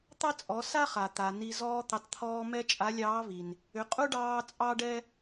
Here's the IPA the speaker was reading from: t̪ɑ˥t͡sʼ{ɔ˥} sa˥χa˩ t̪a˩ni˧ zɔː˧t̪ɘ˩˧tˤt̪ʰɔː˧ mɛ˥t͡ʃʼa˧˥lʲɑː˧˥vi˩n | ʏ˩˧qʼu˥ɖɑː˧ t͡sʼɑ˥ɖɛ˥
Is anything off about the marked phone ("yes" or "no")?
yes